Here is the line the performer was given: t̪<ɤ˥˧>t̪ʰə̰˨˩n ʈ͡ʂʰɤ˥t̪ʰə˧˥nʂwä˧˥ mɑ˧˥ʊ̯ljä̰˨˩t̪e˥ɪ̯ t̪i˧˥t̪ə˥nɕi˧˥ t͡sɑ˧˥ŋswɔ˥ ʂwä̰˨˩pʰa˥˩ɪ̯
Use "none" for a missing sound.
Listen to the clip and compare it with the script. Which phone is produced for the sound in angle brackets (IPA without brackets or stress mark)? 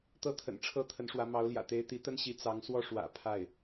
ɤ˥